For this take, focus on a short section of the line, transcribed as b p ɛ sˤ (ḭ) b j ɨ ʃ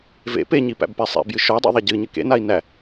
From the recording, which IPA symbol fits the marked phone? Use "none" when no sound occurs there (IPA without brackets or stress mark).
ḛ